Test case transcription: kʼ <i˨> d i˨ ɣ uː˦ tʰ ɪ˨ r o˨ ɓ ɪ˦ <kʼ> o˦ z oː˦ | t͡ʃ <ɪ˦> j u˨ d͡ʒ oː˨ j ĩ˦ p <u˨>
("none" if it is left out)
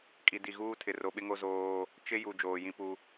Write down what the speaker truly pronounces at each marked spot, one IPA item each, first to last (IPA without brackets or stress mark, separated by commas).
i˨, ŋ, ɪ˦, u˦